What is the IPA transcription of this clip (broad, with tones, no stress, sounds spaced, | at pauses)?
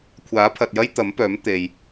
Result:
kʷʰ aː˨˥ pʰ ɐ˨ t̚ j ɐ˥ j t̪ ɐ˨˥ m p œː˨˥ m t̪ e˨ j